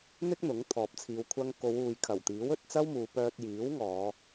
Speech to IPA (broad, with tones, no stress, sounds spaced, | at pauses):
n̪ ɪ˥ k̚ n̪ ʊ˨˥ ŋ t̪ʰ ɔː˨ p̚ t͡sʰ iː˨˧ w kʷʰ ɐ˧ ŋ k o˨˧ w uː˨ j kʰ ɐ˨˩ w t̪ iː˨˥ w ɵ˨ t̚ t͡s ɐ˥ w m uː˨˧ p œː˧ t̚ j iː˨˥ w ŋ ɔː˨˧